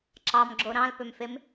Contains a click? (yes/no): yes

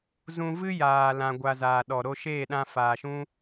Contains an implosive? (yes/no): yes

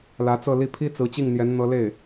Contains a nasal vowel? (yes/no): no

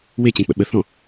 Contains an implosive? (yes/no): yes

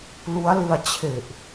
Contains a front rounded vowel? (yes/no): no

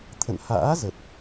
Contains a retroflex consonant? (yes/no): no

